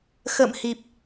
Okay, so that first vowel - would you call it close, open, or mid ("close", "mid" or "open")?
mid